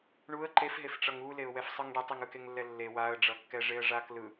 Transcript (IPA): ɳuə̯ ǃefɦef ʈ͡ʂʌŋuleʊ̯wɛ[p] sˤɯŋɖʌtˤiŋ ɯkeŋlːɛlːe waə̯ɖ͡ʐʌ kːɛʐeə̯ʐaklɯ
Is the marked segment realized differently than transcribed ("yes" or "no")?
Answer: yes